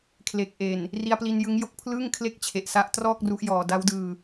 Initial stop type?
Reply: aspirated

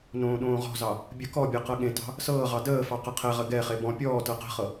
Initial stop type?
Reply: implosive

